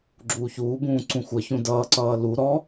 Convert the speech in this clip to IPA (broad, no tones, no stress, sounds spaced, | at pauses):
ɡ͡ǁ uː ç uː b ũː ǀ ũ xʷ ʌ ç ũ d ʌː ǀ ʌː l u ɾ ɔ